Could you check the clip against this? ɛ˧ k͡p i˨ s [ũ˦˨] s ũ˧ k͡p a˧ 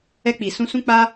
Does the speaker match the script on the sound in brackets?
no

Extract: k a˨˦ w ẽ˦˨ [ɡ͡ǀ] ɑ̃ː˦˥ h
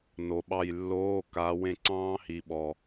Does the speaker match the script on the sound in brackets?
no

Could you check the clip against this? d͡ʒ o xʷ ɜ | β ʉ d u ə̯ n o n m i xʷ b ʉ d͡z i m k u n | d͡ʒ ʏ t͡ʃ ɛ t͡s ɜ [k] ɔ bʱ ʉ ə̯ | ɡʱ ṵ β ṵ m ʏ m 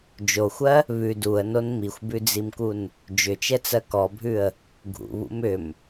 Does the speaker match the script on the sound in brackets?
yes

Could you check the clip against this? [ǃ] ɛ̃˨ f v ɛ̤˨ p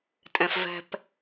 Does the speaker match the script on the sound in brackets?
no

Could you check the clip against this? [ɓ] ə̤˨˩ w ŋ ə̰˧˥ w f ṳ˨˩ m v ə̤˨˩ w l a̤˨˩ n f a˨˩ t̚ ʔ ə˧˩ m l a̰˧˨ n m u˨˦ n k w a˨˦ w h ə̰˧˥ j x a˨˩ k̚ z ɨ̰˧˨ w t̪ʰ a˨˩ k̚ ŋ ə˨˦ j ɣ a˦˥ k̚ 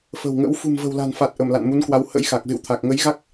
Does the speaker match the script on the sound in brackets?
no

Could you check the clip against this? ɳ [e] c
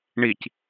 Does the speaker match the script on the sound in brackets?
no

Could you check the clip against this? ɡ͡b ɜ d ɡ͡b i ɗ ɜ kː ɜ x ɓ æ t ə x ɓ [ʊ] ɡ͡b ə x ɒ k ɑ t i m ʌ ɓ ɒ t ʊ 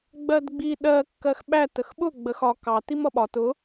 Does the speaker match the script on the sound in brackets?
yes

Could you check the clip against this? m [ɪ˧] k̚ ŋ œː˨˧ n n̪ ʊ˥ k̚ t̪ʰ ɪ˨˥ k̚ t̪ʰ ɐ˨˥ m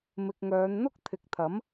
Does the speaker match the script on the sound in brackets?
no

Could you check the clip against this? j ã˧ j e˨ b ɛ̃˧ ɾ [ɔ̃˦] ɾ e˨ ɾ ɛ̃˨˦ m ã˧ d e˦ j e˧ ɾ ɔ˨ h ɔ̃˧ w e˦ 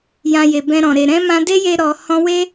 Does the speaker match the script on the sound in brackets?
no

